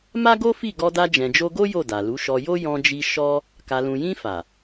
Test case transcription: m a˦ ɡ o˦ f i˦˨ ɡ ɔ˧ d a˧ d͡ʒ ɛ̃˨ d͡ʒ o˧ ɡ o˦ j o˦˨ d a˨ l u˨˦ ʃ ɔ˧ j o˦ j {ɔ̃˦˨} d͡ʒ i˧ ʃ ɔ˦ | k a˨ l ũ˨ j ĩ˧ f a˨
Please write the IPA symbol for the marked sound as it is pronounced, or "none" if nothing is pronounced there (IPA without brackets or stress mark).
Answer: ɔ̃˧